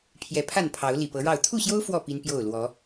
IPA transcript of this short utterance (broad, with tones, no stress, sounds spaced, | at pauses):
pʰ j ɛ˨˦ pʰ a˥˨ n pʰ ɑ˨˦ ʊ̯ l i˨˩ p ɤ˨˦ ɻ ɑ˥˨ ʊ̯ t̪ʰ u˥˨ ɕ j o˦ ʊ̯ f w ɔ˥˨ p i˦ n p j o˥˨ ʊ̯ l w ɔ˨˦